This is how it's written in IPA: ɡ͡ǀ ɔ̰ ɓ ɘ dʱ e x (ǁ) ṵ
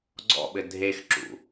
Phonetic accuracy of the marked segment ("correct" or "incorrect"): correct